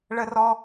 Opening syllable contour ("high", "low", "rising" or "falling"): high